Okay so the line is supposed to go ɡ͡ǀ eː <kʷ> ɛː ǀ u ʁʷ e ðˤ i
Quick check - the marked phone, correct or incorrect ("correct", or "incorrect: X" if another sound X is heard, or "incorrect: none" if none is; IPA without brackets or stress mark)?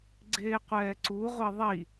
incorrect: qʷ